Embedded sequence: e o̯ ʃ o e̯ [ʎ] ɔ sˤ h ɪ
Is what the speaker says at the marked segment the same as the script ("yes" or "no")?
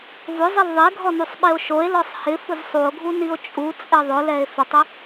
no